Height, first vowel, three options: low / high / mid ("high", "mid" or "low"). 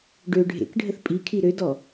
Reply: mid